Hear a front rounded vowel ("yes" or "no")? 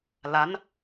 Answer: no